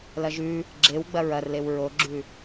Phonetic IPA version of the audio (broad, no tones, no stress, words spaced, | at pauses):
lɐʒʉ | ɡ͡ǁewɡ͡bɐ ɹɐrlew ɹoɡ͡ǁʉ